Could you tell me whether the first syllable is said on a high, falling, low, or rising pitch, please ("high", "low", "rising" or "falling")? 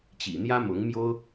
low